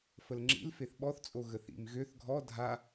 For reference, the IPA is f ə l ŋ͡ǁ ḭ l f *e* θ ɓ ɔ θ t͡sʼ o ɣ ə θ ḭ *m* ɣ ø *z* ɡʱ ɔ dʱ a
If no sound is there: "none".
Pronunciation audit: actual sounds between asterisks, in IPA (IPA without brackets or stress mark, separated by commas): e, m, θ